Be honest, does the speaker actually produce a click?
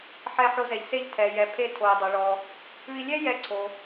yes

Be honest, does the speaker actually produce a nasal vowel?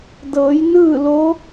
no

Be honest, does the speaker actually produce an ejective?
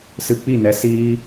no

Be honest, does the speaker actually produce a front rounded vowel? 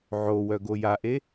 yes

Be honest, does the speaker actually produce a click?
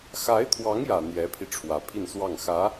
no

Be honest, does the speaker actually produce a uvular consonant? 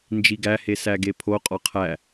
yes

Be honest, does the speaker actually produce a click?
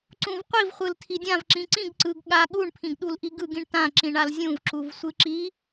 yes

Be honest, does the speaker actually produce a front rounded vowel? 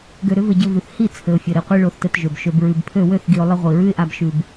yes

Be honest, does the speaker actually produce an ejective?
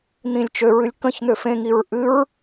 no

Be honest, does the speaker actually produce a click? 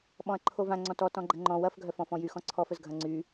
yes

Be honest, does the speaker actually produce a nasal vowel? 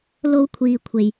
no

